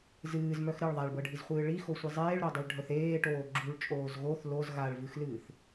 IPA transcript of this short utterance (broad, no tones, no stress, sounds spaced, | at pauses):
z ɨː z m œ x ɾ ɨ ɭ ðˤ a ɭ b ɤ ɖʱ i z χʷ ɨː ɭ i x o sʷ ɨ zˤ eː ɭ ɾ o dˤ e ɭ ɖʱ œ θ eː ʈ oː ɡ͡ǁ u ɭ t͡ʃʼ oː z ɣ o θ l o z ɣ a ɭ v ɨ x l ɨː θ